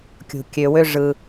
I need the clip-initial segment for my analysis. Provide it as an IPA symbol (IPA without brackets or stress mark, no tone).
kʲ